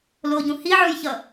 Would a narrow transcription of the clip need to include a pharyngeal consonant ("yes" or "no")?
yes